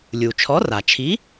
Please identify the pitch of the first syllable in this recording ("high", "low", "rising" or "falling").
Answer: low